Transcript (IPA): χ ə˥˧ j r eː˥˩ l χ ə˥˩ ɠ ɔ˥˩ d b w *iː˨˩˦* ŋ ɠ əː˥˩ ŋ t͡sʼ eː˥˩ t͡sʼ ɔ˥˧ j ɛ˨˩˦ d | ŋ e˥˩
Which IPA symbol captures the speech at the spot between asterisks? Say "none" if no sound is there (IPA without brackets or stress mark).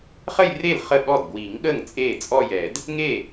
iː˨˩˦